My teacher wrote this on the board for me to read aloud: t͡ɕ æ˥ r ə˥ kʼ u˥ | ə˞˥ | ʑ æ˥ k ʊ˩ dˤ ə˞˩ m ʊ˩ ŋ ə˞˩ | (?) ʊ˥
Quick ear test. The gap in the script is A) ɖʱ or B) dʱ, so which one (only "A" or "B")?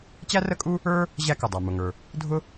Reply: B